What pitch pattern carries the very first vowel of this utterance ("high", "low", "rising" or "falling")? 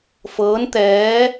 rising